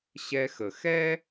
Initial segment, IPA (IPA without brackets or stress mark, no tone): ɕ